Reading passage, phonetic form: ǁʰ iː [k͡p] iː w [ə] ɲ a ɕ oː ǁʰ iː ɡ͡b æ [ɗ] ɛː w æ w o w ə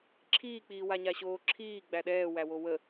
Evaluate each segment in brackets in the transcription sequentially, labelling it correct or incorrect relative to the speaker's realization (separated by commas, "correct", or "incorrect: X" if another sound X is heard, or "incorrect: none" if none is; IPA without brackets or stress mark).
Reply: correct, incorrect: a, correct